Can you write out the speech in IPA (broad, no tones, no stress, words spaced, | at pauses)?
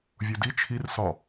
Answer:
vʲudi t͡ʃʰir sɒ